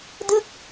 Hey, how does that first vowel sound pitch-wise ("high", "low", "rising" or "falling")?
falling